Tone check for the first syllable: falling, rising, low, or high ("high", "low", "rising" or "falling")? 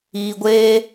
high